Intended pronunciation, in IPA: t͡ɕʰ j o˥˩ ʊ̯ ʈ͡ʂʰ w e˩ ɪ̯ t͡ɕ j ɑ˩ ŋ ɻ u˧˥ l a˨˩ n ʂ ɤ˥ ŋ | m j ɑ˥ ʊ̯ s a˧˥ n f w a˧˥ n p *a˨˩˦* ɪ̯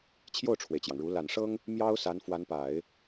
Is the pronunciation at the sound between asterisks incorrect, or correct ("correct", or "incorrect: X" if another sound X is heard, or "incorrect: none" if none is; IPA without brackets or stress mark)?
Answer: correct